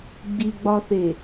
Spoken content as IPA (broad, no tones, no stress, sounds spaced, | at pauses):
ɡ͡b i ɡ͡b ɒ θ e